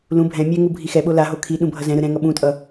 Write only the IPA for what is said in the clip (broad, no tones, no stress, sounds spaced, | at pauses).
l ũ bʱ ɛ̃ mʲ ɛ ŋ u bʱ i x ɛ ɓ o l a ɦ o kʰ i ɗ ũ bʱ ʌ z ɛ̃ ɾ ɯ ɾ ɛ̃ ŋ ʌ ɓ ũ tʼ ʌ